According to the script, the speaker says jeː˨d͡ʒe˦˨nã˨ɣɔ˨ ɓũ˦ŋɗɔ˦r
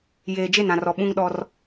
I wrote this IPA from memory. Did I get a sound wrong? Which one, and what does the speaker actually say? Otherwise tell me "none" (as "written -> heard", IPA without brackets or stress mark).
ɣ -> r